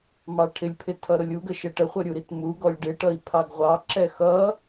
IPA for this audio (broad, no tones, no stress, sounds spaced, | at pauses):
m ɑ ʈʰ ɪ lʲ pʰ ɪ tʰ ʌ ɾ ʊ lʲ u ɡ ə ʃ ɛ ʈ ə χʷ ə ɾʲ u ɾ i t m u ɡ ɔ lʲ ɖ ɪ ʈ ʌ i̯ pʰ ɑ ɡ ʁʷ ɑ ǁ ɛ x ʌ